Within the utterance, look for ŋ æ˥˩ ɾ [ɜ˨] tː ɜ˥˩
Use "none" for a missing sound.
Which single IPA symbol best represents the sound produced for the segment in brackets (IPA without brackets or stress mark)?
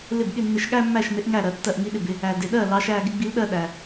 ɜ˨